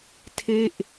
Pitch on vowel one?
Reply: falling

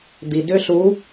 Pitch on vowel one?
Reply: low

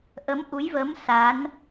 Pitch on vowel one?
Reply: rising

